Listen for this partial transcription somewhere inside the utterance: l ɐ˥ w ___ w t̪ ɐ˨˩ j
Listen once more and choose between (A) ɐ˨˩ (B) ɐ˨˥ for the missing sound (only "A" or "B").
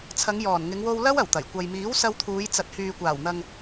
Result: A